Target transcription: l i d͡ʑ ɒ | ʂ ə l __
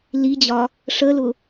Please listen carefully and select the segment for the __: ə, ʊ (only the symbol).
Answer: ʊ